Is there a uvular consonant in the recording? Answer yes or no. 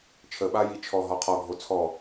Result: yes